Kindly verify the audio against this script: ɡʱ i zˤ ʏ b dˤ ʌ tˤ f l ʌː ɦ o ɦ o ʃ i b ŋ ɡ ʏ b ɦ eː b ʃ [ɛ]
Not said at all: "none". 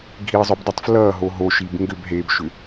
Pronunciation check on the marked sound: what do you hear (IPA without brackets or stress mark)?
ʏ